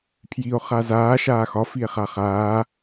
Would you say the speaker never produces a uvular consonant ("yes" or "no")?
no